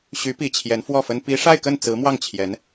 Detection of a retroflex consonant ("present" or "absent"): present